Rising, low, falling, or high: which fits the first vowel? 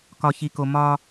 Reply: high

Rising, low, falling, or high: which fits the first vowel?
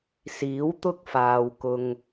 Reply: rising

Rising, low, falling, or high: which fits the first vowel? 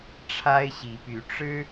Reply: high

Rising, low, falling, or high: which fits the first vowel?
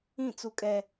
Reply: falling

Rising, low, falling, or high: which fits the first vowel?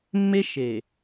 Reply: high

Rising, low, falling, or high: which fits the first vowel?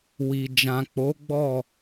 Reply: low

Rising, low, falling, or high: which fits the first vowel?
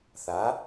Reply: rising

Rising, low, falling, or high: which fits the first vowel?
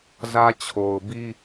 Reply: high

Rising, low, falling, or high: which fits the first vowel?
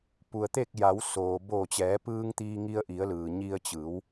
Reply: low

